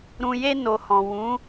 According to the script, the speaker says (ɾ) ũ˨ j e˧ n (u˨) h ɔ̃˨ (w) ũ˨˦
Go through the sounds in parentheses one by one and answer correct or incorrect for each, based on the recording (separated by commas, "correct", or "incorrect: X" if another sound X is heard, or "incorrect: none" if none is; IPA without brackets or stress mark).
correct, incorrect: o˨, correct